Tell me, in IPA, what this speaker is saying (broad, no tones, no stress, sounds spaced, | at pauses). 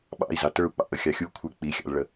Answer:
ɓ ɑ̰ i̯ z ɑ t ə˞ u̯ k͡p ɑ̰ ʔ ə xʲ ɑ xʲ u kʷʰ ə˞ k͡p i xʲ ɑ̰ l ɭ ə